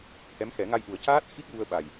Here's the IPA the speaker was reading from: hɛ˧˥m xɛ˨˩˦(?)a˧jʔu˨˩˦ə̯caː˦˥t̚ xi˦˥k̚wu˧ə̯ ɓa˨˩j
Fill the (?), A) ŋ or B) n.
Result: A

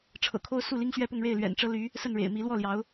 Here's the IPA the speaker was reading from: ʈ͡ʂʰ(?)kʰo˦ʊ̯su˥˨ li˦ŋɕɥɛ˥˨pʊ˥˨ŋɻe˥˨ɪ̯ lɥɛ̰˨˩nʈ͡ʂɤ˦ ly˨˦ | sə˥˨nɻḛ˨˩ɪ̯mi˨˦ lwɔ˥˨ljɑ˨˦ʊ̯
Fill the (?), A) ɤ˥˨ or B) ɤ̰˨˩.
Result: B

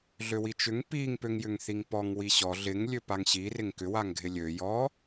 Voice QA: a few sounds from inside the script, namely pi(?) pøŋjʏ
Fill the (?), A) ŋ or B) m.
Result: A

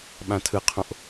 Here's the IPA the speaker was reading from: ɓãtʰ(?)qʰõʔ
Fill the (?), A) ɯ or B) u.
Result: A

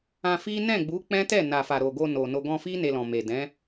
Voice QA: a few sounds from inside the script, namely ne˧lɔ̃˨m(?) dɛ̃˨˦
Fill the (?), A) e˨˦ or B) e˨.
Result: B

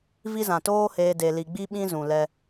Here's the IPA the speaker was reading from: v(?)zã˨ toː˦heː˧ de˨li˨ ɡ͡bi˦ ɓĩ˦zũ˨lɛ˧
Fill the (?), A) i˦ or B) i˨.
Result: A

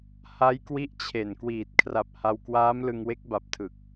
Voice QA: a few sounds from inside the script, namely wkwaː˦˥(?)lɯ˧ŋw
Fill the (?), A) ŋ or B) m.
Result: B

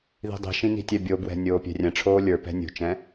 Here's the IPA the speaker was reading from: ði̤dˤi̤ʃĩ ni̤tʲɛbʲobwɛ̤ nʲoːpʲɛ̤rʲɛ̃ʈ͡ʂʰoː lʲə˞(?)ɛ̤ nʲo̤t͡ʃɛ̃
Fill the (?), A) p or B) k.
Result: A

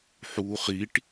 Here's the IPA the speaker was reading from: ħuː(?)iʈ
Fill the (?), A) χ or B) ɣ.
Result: A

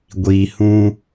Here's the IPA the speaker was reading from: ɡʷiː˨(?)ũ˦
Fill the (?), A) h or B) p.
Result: A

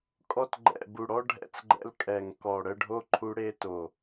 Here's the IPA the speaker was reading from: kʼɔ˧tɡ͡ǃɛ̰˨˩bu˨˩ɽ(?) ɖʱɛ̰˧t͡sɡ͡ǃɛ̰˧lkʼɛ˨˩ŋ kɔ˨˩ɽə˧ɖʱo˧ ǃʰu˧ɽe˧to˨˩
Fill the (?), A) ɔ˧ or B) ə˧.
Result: A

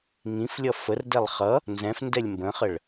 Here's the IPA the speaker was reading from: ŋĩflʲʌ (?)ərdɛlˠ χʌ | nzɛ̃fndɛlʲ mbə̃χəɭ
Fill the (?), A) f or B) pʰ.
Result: A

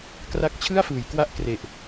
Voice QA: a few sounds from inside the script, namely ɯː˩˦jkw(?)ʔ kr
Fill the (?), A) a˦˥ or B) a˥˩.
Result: A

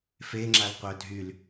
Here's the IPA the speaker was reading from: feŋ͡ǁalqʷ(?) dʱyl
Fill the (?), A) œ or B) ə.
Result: A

